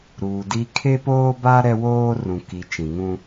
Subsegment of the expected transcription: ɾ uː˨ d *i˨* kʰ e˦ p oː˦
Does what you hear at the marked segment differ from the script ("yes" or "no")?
yes